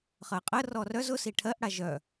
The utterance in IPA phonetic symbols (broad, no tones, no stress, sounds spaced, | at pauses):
χ ɜ qʼ ə r ɔ r œ z ʊ s i ʈʰ ɜ ʔ ɽ a ʒ œ